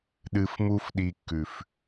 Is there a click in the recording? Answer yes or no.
no